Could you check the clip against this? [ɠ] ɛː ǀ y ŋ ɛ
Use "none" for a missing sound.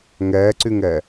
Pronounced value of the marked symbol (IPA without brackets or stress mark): ŋ